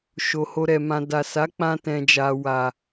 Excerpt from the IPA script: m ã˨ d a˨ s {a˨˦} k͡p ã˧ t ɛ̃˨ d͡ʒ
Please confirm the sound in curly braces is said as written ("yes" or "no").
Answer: yes